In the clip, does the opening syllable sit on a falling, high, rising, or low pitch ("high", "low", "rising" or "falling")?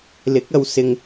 rising